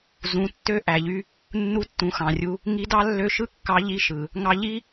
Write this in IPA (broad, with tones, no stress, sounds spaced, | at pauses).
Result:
z ũ˩˧ tː ø˧˥ ʔ æ˩ ʎ y˧ | nː u˧ tː ũ˩˧ x ɑ̃˩ rʲ u˧ | ŋ i˧˥ d ɑ˥ lː ø˧˥ ʃ ɯ˥ kː ɑ˧˥ ʎ i˧˥ ʃ ɯ˩ | ŋ ɑ˧ ʎ i˥